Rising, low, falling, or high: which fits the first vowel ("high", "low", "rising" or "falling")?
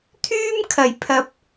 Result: high